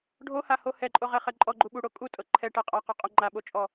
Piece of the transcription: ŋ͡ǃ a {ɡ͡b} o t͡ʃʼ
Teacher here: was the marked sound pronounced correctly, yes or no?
no